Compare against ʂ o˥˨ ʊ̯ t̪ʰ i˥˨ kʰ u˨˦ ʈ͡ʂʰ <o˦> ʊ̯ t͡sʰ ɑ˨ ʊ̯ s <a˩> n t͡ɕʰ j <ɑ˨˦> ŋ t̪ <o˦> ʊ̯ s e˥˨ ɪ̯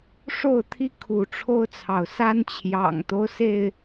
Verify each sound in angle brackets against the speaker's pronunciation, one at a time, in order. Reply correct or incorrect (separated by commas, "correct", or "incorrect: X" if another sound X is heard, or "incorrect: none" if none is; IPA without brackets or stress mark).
correct, incorrect: a˦, incorrect: ɑ̰˨˩, correct